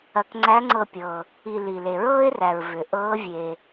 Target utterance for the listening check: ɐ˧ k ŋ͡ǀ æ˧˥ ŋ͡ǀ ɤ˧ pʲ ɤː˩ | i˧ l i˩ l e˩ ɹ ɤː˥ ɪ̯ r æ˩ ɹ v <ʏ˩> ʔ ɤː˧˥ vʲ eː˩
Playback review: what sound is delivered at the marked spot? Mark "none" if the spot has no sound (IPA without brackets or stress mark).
ʏ˩